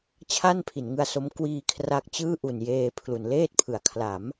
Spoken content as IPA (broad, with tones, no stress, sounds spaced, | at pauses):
t͡ɕʰ a˥˩ n pʰ i˩˦ n ŋ ɯ˧ a̯ s o˦˥ m k w iː˧ kʰ r a˦˥ k̚ t͡ɕ ɯː˥˩ ʔ u˨˩ n j eː˧ pʰ l u˩˦ n l eː˥˩ t̚ pʰ ɯ˩˦ a̯ kʰ l a˩˦ m